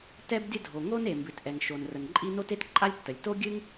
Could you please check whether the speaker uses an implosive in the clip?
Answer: no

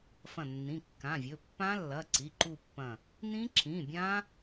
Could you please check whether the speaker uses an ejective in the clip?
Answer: no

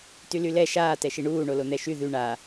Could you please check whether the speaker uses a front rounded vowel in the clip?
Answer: yes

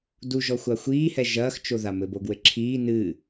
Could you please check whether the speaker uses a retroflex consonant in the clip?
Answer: no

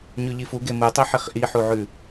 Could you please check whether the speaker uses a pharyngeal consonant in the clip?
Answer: yes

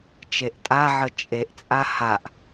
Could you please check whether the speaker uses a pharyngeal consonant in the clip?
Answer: yes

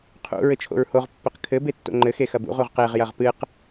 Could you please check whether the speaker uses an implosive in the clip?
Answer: no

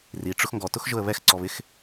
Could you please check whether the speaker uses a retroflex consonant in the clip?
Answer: yes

